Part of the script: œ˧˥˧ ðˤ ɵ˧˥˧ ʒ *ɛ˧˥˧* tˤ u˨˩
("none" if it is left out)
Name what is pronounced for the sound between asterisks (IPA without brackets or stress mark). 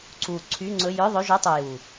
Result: œ˧˥˧